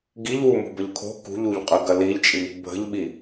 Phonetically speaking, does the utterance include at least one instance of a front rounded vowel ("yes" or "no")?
no